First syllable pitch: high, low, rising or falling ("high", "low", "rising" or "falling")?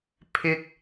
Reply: high